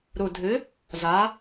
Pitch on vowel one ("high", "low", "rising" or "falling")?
low